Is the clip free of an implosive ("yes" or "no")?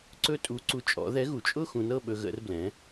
no